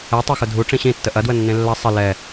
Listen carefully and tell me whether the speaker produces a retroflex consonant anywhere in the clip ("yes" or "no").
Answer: yes